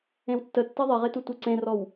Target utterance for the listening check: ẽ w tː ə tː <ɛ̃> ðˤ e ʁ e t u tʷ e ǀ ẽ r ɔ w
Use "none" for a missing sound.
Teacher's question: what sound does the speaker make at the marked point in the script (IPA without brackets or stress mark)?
ɛ